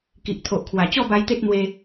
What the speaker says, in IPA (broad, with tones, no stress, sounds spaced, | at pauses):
k i˨ ʔ t̪ʰ o˨ ʔ kʰ w a˨˩ t͡ɕ ɔ˥˧ b a˧ j t̪ e˦ t̚ n̪ w e˧